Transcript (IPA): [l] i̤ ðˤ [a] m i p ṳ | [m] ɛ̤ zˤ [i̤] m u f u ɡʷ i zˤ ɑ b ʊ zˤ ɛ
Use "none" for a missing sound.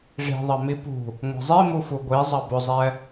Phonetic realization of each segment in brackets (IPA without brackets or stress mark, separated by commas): ʐ, ɑ, ŋʷ, i